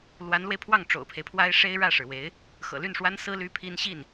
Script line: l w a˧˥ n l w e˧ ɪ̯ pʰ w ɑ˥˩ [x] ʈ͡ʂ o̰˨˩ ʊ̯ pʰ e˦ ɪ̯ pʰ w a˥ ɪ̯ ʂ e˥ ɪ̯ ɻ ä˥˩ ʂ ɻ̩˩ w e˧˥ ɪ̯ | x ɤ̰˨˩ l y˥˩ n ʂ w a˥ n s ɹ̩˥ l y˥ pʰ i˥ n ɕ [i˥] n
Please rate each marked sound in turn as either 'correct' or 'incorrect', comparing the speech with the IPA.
incorrect, incorrect

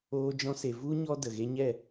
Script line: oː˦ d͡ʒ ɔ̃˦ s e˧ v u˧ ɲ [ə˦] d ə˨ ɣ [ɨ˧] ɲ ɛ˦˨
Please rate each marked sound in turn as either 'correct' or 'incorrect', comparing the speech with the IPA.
incorrect, incorrect

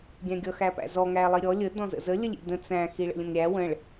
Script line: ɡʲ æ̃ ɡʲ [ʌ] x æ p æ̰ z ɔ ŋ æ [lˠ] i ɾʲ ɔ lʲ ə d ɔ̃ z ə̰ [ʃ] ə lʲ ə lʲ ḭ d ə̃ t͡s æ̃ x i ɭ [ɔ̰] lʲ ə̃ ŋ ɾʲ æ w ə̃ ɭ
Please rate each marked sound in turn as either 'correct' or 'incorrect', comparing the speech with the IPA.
correct, correct, incorrect, incorrect

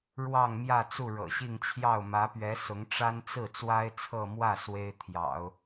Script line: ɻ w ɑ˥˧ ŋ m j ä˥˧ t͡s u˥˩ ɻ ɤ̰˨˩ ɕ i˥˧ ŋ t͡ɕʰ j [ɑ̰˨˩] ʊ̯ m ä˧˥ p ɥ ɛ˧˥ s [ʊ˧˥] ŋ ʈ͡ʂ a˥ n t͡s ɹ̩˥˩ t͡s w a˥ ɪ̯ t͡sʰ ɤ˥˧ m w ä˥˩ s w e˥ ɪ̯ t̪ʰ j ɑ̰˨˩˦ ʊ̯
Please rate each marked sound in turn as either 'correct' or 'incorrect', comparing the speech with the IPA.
incorrect, correct

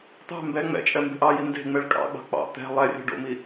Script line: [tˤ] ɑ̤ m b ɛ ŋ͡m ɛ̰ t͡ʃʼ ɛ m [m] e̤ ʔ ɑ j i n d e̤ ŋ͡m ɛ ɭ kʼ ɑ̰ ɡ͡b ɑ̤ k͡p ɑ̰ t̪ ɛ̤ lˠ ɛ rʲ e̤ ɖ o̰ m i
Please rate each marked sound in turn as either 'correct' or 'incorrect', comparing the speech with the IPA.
incorrect, incorrect

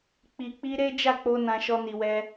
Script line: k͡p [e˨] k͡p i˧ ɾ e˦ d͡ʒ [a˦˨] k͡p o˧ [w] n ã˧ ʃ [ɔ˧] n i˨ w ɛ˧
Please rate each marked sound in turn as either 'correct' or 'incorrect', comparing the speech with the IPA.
incorrect, correct, incorrect, correct

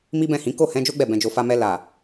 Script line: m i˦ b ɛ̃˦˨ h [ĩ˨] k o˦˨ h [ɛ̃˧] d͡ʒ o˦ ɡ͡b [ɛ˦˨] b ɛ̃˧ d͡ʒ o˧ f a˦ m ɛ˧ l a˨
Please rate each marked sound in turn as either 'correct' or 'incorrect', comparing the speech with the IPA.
incorrect, correct, correct

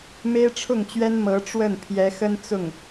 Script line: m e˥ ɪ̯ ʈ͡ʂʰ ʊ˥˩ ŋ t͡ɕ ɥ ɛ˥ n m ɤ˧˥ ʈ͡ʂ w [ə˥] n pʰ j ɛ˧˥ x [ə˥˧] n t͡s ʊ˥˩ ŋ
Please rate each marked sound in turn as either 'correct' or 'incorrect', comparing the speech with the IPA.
incorrect, incorrect

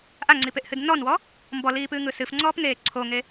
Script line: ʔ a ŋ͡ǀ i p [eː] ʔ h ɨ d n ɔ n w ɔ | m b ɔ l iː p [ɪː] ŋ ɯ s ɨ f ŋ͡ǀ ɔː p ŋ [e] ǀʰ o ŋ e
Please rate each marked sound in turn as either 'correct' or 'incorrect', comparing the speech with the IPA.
incorrect, incorrect, incorrect

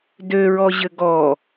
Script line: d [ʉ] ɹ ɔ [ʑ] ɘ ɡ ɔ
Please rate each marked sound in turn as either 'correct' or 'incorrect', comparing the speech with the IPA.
incorrect, correct

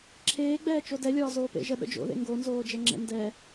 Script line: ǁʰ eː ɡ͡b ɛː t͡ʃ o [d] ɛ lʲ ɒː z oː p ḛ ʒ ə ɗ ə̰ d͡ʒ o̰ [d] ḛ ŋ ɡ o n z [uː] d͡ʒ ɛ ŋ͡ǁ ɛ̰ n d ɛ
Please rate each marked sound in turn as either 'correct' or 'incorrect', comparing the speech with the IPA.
correct, incorrect, incorrect

